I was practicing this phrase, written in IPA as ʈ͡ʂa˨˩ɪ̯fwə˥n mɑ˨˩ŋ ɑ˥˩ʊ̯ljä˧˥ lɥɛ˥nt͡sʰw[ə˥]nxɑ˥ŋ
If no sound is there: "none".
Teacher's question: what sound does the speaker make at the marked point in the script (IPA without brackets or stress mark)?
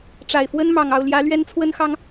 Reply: ə˥